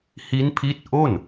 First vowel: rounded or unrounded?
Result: unrounded